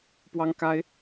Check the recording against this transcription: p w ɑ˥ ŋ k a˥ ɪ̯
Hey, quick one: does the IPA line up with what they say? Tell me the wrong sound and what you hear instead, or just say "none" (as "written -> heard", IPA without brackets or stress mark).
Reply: none